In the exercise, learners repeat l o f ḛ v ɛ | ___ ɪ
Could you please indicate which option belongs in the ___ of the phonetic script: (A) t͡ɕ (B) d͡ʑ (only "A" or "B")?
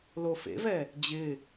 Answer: B